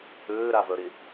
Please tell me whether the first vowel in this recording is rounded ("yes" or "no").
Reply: yes